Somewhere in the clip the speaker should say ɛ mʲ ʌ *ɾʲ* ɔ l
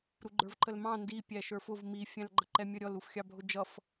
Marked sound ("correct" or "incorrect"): correct